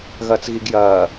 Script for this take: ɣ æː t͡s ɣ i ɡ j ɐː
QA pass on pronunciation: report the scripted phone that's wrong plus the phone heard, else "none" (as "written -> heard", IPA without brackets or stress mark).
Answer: æː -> ɐː